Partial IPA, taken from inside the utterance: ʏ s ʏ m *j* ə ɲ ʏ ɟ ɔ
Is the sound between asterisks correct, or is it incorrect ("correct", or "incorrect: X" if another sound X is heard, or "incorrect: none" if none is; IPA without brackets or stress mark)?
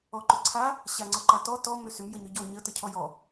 correct